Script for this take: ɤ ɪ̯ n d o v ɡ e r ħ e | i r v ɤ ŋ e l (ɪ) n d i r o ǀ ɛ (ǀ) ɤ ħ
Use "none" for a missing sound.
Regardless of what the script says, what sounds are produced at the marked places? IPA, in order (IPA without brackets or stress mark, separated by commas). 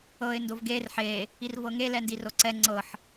ɛ, ŋ͡ǀ